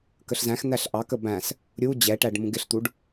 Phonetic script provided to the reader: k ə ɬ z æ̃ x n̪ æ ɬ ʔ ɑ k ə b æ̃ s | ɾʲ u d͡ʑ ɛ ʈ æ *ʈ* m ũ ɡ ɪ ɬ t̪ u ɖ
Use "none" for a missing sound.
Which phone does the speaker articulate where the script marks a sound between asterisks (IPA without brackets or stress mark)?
ɖ